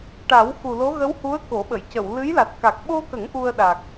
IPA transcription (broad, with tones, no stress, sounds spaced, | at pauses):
ʈ a˨˩˦ w x u˨˩ l o˧˥ ɣ ə˧˥ w h u˧˥ ə̯ k o˨˩˦ ɓ ə˨˩˨ j c ə˨˩˨ w l ɨ˧˥ j l a˨˩ t̚ k a˨˩ k̚ ɓ o˧ k ə˨˩˦ ŋ ʔ u˧ ə̯ ɗ a˨˩ k̚